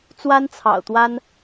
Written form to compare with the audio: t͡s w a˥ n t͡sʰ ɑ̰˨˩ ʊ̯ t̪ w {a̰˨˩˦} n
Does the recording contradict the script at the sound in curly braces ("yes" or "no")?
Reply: yes